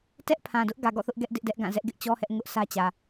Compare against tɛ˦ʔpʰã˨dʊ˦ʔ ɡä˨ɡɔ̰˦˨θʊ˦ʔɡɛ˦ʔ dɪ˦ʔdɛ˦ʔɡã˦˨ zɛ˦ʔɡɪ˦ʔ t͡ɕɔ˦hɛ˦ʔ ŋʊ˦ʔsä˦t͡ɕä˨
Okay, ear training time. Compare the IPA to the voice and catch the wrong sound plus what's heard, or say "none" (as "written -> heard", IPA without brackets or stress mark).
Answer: none